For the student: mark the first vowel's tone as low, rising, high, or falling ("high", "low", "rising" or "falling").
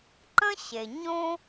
high